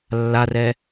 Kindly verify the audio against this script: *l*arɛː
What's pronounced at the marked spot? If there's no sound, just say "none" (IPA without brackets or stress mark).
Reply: lː